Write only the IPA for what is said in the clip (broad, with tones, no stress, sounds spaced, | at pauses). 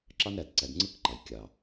ǁ ɑ˦ n ɾ æ˨ d ǀ æ˨ d ŋ͡ǀ ɯ˦ k ǃ ɑ˨ j kʲ ɑ˨